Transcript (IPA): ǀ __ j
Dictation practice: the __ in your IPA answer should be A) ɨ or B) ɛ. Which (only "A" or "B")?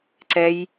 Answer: B